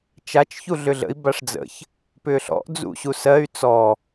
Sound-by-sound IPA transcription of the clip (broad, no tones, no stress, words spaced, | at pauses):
t͡ʃat͡ʃ çuɮʏɮə̰i̯ baʂd͡zə̰ç | pʏːɬɔ̰ʔ d͡zṵɕusɜy̯ t͡sɔ